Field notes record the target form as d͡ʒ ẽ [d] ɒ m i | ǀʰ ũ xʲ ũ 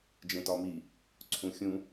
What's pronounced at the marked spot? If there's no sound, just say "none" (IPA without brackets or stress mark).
t